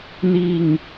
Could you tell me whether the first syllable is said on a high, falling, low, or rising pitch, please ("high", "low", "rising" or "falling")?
falling